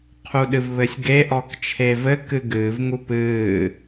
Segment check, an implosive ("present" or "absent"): present